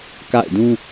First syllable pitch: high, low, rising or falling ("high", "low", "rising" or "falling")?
falling